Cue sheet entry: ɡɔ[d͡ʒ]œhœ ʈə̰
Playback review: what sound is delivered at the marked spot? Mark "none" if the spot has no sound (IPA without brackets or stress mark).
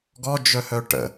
d͡ʒ